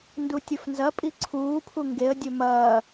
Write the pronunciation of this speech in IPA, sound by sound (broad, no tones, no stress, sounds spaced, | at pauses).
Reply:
n d u tʲ ɵ f n z ɐ pʼ i ǀʰ uː pʰ u ŋ ɡ e ə̯ dʲ ɵ m ɐː